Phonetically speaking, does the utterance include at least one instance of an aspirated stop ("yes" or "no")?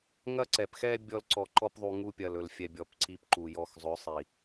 no